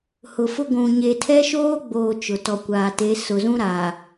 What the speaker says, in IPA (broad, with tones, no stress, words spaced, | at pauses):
hʊ˨fʊ˦ ɡʷũ˨ɲe˨ tʰɛ˦ʃoː˦ɡ͡boː˨ t͡ʃʊ˨tɔ˨kʷaː˨te˨˦ sʊ˨zũ˦ ɾa˨